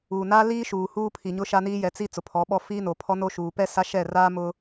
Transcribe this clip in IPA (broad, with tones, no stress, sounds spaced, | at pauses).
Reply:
uː˨ n aː˦ l iː˦ ʃ uː˨ h uː˦ pʰ i˨ ɲ ʊ˦ ʃ a˦ n iː˦ j ɛ˨˦ t͡s i˦ t͡s ʊ˨ pʰ ɔ˨˦ ɓ ɔ˦ f iː˦ n o˨ pʰ ɔ˦ n o˦ ʃ uː˨ p ɛ˦ s a˦ ʃ ɛ˦˨ r aː˦ m ʊ˦